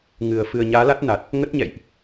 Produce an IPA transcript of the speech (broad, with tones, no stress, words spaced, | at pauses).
ŋɨ˨˩ə̯ fɨ˨˩ə̯ɲaː˨˦la˦˥t̚ na˨˩t̚ | ŋə˦˥t̚ɲɛ̰˧˨jʔ